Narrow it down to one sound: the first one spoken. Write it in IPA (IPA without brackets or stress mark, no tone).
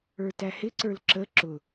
ə˞